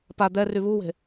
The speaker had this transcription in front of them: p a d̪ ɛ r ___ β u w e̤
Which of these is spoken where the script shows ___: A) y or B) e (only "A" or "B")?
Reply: A